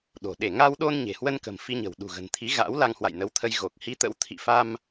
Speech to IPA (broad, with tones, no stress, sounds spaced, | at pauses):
ɗ o̤˨˩ ɗ e˧˩ ŋ a˧ w ɗ o˧ n ɲ e̤˨˩ h w ə˧ n k ə̤˨˩ m f i˧ ɲ ə̤˨˩ w ɗ ṳ˨˩ ɣ ə̤˨˩ n t̪ʰ i˨˦ ɣ a̰˧˥ w l a˧ ŋ h w a̰˧˨ j n ə˨˦ w t̪ʰ ə˧ j ɣ o˨˩ k̚ h i˧ t̪ ə̰˧˥ w t̪ʰ ḭ˧˨ f a˧ m